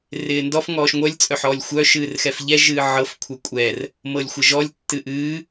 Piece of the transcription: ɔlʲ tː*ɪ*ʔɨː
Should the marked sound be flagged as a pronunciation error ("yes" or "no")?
yes